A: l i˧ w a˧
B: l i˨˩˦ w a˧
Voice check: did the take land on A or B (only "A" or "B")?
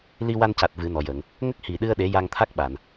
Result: A